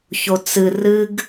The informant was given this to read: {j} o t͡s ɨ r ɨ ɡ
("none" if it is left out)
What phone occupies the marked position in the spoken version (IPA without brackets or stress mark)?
ç